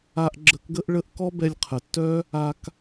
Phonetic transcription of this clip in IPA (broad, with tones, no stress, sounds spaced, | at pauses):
a˧ ʔ ɡ͡ǁ ə˧ k ɡ ə˥ ʔ ɭ ə˥ ʔ k ɔ˥ b ɛ˧ lʲ qʰ ə˩ tː œ˥ | a˧ k